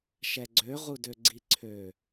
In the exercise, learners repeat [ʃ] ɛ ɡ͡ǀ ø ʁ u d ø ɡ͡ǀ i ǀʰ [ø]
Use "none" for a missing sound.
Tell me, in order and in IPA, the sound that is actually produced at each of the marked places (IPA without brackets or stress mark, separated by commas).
ʃ, ø